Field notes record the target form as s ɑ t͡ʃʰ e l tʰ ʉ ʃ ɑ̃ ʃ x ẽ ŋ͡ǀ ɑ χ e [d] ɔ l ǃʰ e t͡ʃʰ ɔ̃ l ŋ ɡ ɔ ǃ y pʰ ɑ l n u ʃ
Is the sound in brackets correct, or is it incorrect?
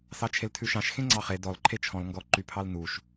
correct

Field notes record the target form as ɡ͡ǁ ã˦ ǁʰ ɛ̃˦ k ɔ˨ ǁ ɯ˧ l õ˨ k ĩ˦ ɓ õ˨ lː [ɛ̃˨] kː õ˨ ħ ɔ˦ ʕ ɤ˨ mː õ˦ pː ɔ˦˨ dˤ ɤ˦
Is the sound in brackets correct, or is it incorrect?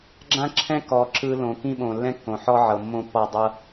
incorrect: ɛ̃˦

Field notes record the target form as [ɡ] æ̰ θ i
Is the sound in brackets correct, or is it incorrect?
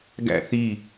correct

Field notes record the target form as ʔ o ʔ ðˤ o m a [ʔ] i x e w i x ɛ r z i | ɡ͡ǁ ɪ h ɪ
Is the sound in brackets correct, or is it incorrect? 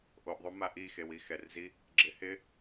correct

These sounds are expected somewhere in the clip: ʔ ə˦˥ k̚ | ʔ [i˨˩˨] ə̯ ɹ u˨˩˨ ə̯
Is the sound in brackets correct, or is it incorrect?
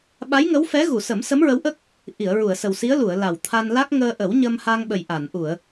correct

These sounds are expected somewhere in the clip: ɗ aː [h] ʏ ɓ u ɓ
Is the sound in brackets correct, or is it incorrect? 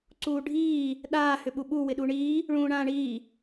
correct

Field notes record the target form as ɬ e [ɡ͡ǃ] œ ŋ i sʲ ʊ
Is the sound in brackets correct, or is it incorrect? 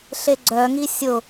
incorrect: ɡ͡ǀ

